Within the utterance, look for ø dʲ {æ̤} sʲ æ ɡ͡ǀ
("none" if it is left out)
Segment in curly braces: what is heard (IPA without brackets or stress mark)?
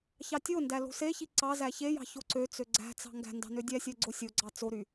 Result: æ